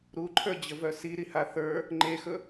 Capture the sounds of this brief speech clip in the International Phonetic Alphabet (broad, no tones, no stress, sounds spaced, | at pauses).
ɾ u ǃʰ ə˞ d͡ʑ ə v œ s i ɾ i h a θ ə˞ | ŋ͡ǃ e x ɵ